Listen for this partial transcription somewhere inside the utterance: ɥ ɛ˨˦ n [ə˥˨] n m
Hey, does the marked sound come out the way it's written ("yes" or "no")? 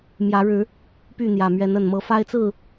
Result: no